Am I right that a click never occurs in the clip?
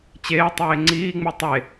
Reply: no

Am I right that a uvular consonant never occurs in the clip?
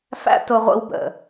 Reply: no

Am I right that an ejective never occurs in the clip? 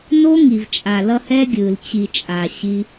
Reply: no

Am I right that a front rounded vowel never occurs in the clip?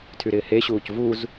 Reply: no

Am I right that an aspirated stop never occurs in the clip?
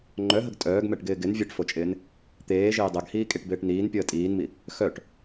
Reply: yes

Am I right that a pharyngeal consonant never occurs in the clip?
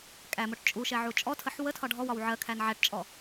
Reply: no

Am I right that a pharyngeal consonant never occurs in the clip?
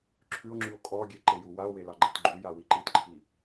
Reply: yes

